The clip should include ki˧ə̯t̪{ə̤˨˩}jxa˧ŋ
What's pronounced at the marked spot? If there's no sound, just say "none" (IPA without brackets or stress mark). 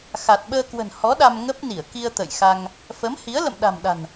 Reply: ə̰˧˨